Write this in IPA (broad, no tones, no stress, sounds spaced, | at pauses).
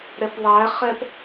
ɾ ɛ p ðˤ æ χ ɛ p